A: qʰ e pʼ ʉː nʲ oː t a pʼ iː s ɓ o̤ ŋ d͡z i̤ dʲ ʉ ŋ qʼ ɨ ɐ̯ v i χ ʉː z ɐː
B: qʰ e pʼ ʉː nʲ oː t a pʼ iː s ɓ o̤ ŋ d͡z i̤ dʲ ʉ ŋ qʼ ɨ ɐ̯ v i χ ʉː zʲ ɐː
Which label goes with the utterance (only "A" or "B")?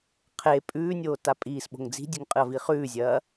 B